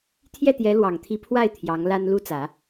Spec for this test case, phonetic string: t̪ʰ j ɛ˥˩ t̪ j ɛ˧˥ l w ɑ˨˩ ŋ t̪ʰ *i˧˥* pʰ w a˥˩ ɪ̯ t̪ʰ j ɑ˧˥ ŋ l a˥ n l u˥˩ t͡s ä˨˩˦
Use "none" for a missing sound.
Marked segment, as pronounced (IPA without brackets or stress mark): i˧˥